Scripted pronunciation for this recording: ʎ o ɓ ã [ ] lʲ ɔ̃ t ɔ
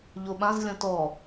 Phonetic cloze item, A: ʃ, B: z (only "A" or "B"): B